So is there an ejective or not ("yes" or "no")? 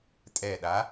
yes